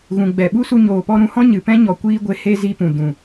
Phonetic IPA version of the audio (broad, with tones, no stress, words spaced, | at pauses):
ɣũ˨ɡ͡bɛ˨ɓu˦ su˧ɲoː˨pɔ˧ ɾũ˨˦hɔ̃˦ ɲɨ˨pɛ̃˦ɲɔ˨ kʷiː˦ɡʷe˧ he˦zi˧pũ˨ dũ˨